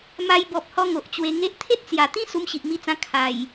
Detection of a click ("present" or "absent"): absent